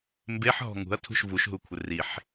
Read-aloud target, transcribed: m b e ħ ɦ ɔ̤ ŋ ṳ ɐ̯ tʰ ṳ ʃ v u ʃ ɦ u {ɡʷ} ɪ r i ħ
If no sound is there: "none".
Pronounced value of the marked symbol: kʷʰ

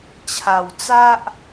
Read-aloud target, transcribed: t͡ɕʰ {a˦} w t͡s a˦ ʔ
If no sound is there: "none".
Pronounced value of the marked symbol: a˨˩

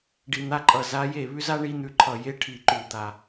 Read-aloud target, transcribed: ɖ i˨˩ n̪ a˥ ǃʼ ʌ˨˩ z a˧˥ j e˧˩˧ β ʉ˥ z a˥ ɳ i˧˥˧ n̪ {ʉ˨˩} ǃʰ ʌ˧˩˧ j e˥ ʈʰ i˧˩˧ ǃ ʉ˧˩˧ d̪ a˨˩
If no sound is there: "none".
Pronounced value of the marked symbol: ʉ˧˩˧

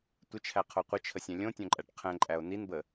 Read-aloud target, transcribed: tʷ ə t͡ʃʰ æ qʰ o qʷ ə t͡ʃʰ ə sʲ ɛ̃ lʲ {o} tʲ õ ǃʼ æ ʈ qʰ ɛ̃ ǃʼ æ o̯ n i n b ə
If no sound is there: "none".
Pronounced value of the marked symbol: õ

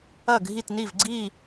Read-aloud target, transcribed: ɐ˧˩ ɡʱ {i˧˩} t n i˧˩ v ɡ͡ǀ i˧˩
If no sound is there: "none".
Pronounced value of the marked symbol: i˧˩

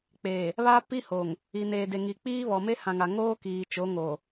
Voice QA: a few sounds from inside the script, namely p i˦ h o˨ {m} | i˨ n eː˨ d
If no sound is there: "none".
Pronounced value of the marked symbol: ŋ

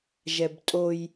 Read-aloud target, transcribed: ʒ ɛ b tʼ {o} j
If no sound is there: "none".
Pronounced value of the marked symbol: o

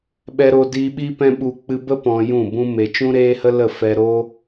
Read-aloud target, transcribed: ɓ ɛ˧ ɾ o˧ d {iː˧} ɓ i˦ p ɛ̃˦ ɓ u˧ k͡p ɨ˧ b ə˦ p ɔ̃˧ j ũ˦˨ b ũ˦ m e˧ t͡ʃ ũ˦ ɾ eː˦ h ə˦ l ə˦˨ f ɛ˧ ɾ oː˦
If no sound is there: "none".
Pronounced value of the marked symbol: i˧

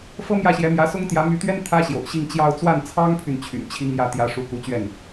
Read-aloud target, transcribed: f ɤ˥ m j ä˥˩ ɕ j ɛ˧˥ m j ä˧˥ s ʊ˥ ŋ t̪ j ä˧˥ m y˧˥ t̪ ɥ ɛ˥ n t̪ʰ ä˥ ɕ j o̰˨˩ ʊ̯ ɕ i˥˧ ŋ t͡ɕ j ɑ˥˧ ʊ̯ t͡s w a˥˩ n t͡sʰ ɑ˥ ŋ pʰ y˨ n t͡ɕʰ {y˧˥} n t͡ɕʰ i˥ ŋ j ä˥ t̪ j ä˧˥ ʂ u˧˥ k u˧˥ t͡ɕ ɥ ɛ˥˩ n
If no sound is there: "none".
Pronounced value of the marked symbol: y̰˨˩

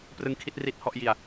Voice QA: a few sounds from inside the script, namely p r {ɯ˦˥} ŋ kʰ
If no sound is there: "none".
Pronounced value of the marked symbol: ɯ˦˥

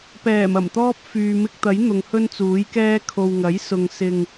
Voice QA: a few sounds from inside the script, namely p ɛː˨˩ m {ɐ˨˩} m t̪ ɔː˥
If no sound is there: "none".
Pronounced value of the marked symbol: ɐ˨˩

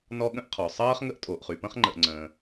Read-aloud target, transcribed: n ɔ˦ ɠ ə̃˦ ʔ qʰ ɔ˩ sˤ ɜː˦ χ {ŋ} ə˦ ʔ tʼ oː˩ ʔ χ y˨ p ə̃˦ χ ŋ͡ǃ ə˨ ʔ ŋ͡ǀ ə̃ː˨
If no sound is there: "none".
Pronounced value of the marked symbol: ŋ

